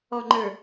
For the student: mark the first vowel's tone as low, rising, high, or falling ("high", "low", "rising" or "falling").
low